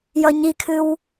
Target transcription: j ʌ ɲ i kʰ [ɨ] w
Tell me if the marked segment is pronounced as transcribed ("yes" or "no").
yes